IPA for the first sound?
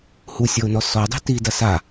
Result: h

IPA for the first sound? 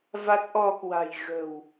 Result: v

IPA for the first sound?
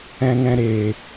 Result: ɛ̃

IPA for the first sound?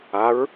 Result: a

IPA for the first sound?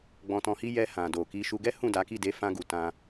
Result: ɡ͡b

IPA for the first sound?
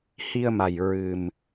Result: h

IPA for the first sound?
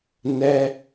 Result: n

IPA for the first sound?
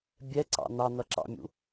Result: bʲ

